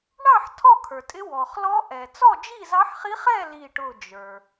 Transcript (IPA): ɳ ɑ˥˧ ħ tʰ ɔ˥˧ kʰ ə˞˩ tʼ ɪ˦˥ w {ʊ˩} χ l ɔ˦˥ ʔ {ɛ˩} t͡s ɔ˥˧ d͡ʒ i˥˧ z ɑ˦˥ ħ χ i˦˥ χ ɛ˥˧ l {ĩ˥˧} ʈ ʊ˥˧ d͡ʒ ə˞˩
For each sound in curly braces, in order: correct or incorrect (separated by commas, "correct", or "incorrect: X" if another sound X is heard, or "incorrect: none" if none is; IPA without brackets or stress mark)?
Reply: incorrect: ɔ˩, correct, incorrect: i˥˧